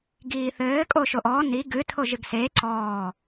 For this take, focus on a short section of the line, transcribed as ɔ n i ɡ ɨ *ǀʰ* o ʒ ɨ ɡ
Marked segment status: incorrect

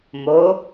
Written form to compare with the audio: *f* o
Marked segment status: incorrect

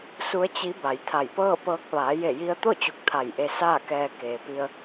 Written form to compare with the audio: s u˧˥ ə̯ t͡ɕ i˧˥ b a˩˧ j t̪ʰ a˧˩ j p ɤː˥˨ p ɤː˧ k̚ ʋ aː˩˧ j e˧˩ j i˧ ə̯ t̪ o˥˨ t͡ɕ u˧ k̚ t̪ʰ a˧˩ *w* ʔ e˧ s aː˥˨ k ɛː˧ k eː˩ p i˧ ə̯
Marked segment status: incorrect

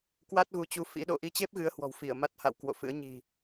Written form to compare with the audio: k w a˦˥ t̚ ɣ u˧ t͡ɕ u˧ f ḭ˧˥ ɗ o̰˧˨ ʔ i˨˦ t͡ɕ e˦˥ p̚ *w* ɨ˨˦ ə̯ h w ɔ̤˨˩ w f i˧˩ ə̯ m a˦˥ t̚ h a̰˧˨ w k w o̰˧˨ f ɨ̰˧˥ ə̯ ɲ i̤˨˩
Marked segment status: incorrect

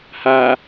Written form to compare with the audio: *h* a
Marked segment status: correct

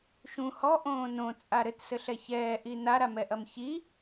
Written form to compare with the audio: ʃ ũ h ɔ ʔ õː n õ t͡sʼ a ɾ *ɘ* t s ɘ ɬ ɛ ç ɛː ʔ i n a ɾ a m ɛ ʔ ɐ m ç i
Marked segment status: correct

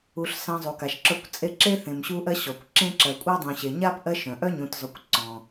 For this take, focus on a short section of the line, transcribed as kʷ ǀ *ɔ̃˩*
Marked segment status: correct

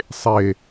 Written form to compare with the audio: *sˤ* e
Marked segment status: correct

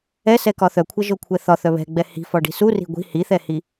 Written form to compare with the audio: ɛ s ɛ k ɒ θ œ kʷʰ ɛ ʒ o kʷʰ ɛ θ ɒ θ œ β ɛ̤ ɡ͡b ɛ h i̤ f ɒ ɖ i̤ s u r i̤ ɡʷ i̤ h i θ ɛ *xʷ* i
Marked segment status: incorrect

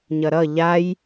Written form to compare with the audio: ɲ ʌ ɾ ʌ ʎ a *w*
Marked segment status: incorrect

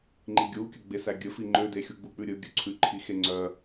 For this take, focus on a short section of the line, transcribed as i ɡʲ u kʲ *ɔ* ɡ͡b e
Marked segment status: incorrect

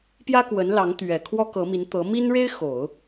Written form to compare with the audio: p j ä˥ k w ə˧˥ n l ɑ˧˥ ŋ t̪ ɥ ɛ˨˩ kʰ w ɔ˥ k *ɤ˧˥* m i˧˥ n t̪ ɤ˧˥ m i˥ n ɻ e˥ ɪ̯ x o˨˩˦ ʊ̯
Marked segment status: correct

